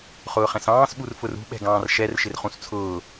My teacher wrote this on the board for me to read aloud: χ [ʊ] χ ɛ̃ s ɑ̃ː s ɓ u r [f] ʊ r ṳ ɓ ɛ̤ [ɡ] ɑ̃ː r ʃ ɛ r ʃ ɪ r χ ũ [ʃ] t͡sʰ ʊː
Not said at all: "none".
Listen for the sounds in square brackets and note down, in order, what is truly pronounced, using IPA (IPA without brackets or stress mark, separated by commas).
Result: ʊː, f, ɡ, s